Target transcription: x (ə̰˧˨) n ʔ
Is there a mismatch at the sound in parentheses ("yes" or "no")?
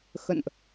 no